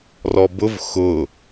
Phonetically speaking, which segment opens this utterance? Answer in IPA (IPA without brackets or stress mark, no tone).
r